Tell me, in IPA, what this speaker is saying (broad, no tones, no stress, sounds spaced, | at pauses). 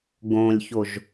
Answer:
ɡ õ lʲ ç o ʒ